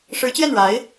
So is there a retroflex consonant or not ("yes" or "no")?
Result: yes